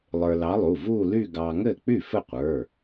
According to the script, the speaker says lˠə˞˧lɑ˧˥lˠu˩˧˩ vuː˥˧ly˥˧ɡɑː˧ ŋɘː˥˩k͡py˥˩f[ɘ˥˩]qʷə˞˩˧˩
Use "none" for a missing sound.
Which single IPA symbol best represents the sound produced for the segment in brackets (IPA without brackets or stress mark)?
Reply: ɘ˥˩